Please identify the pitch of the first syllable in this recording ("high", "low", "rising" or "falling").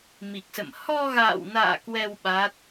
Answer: low